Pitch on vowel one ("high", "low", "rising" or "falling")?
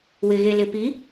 low